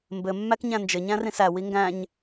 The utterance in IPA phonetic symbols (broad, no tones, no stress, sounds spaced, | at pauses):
m b ɘ mː æ k ɲ æ̃ n d͡ʒ ɘ ɲ æ̃ r ĩ s æ w i ŋ ɡ æ̃ ɲ